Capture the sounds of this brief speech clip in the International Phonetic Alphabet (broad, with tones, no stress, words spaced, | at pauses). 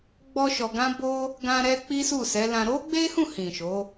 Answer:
ɡ͡bɔ˦ʃɔ˧ɡã˦bo˦ | ɡã˦ɾɛ˦ k͡pi˦su˦˨sɛ˨˦lã˧ ɾo˦ɡ͡be˦hũ˦˨hĩ˨ ʃo˨˦